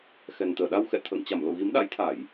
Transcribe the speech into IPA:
x ɛ˨˩ n t̪ əː˧˩ ɗ a˧ w x ɛ̰˧˨ t̪ʰ ə̰ː˧˨ ŋ t͡ɕ a˧˩ m l o̰˧˨ ɣ i˨˦ m ɗ a̰˧˥ j t̪ʰ a˧˩˨ j

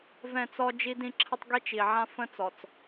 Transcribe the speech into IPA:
v ɛ̃˦˨ t͡s ɔ˦ d͡ʒ i˦ d ĩ˦ ǁʰ ə˦ tˤ ɡ i˦ t͡ʃ i˨ ʕ ã˦ f ə̃˦ t͡s ɔ˨ t͡s

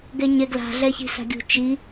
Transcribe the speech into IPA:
ɡ ɛ ɲ ɛ ɡ l a̤ ɮ ɛ ç i̤ s a̤ ɡʲ ṳ t͡ʃ i

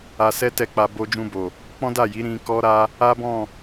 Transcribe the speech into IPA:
a˧ s ɛ˦ t ɛ˦˨ k͡p a˧ b o˧ d͡ʒ ũ˧ b o˨ | k͡p ɔ̃˦ d a˦˨ j i˨˦ ɾ ĩ˦ k ɔ˦ ɾ a˦ | a˦ b ɔ̃˦˨

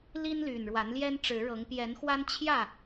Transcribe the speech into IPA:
l i˦ n l y˨˩ n ɻ w a˨˦ n l j ɛ˦ n ʈ͡ʂ ɻ̩˨˦ ɻ ɤ˨˦ ŋ p j ɛ˨˦ n x w a˦ n t͡ɕʰ j ä˥˨

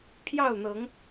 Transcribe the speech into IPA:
pʰ j ɑ˥˨ ʊ̯ n̪ ɤ˨˦ ŋ

